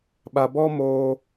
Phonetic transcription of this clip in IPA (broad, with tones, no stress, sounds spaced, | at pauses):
ɓ a˧ b ɔ˦ m oː˧